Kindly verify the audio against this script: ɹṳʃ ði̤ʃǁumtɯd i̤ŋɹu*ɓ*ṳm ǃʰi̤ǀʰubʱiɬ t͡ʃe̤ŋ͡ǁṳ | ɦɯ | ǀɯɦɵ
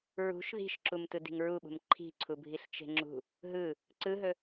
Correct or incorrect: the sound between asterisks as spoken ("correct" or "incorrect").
correct